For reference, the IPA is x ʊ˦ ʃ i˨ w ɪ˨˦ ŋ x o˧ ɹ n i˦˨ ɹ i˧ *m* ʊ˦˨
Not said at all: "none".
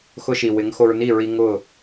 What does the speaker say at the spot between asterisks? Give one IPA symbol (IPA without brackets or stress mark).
ŋ